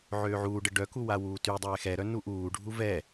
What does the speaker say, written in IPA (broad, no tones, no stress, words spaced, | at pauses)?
ʕøːʕuːɖə ɖœku wawuːtydˤɛː xɛɾœ nuʔuːɖʱu vɛ